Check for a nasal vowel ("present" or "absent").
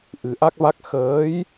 absent